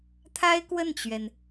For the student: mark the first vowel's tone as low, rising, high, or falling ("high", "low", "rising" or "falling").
high